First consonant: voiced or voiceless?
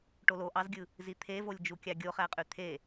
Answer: voiceless